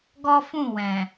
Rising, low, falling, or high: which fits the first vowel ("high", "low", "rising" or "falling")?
high